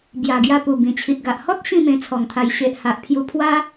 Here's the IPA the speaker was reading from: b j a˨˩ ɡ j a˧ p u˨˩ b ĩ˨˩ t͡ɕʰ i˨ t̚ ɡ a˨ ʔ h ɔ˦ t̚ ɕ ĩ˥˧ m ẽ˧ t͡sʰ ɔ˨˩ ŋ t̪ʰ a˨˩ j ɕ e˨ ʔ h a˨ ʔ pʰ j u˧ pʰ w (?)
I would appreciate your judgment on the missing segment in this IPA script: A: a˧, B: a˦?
B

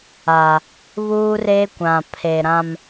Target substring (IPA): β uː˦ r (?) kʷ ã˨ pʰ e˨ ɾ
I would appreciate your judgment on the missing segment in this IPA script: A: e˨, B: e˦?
B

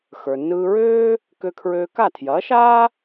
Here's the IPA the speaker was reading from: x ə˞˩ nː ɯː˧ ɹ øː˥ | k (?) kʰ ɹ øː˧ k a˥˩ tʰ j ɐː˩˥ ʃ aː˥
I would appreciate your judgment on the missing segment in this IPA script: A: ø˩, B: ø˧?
B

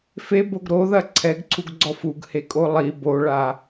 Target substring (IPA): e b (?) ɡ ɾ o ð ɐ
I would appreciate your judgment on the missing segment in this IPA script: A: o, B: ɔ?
A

